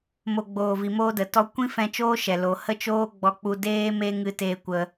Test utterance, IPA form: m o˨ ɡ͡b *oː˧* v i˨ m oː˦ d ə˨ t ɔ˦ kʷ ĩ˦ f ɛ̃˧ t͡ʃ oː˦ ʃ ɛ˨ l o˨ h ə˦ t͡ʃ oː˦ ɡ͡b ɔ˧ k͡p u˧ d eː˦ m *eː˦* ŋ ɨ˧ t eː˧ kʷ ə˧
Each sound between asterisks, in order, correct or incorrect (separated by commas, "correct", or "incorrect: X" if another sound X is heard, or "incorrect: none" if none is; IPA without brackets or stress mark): incorrect: oː˨, incorrect: e˦